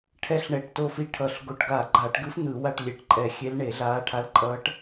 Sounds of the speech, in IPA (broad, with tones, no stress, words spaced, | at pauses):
ʈʰɛ˧˥ɬɳɛ˨˩ʈto˦˨fi˧˥ ʈʰʌ˨˩ɬ ɡo˨˩ʈɡaː˧˩˧ɡ͡ǃaː˧˩˧ʈ ɡɯ˧˥f n̪ɯ˧˩˧wa˦˨ʈ lʲe˨˩ʈǃʼɛ˧˩˧xʲe˧˥l ɳe˧˩˧ɮaː˧˥ʈʰa˧˥lǃʼʌː˧˥ʈ